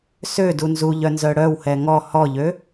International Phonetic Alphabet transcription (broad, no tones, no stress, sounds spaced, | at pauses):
s ø d u n z u ʎ œ n z œ ɽ œ w h ɛ ŋ ɔ h ɔ ʎ ø